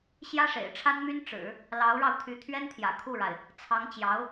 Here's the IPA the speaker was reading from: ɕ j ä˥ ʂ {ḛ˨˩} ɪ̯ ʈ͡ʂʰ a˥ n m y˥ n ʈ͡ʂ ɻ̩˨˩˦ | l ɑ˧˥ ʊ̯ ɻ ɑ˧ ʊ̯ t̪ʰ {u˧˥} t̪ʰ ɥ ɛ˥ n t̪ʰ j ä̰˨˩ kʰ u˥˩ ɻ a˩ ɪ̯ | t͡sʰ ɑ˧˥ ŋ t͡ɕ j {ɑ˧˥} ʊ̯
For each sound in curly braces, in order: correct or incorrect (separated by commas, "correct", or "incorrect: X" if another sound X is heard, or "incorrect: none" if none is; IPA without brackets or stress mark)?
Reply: correct, incorrect: y˧˥, correct